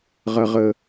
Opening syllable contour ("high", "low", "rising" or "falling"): high